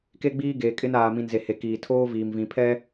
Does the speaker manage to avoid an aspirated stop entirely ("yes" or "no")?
no